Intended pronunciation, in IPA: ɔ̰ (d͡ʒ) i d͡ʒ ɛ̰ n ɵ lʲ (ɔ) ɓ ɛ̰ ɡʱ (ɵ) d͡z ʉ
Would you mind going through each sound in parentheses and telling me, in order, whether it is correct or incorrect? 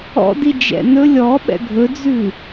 incorrect, correct, correct

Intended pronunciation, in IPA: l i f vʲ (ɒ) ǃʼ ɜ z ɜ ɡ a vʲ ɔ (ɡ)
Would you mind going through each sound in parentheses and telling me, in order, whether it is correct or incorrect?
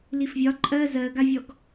correct, correct

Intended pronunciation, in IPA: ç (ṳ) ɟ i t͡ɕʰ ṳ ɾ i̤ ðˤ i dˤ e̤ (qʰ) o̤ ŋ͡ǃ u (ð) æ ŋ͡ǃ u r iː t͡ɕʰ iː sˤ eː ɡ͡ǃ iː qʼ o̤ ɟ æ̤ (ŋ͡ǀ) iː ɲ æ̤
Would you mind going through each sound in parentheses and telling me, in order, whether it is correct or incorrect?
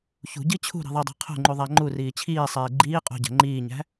correct, correct, incorrect, incorrect

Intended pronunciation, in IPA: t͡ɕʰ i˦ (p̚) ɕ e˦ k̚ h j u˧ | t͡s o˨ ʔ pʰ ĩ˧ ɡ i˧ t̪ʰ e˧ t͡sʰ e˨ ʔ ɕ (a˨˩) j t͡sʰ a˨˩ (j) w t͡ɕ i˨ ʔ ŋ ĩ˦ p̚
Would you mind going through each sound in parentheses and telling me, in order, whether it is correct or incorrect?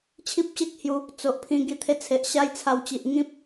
correct, incorrect, incorrect

